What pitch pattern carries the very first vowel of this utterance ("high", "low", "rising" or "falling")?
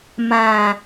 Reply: low